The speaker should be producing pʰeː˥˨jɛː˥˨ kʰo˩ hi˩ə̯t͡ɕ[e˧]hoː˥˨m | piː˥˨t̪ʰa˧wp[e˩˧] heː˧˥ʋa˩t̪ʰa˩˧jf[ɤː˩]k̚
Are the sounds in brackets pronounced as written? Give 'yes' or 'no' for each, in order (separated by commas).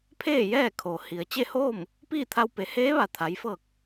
no, yes, no